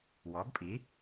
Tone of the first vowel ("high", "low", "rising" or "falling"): rising